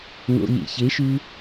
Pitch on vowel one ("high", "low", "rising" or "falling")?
low